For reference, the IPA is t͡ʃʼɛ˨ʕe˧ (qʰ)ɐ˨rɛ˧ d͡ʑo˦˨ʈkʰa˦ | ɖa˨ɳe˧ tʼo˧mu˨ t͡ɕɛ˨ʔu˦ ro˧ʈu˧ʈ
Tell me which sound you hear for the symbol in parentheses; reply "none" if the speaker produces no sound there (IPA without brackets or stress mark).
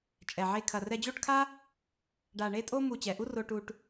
kʰ